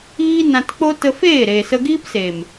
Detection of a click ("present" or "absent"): absent